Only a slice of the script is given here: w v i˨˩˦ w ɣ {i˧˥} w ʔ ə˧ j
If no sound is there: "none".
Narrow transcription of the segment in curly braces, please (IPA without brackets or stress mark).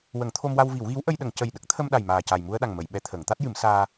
i˧˥